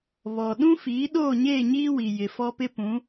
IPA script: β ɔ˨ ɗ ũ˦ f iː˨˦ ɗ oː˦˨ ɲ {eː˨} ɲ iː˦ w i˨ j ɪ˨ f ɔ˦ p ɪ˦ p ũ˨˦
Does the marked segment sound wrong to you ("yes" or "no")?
yes